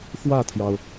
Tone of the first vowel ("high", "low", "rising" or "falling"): falling